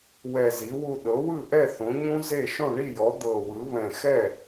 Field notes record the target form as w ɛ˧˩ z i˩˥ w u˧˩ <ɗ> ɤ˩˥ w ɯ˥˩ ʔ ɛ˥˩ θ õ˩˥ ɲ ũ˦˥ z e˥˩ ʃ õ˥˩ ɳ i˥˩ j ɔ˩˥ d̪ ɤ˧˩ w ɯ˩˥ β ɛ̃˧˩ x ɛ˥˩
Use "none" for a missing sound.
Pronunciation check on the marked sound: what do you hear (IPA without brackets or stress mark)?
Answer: ɗ